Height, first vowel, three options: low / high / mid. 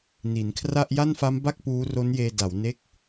high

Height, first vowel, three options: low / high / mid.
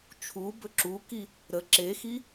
high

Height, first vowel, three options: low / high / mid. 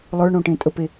mid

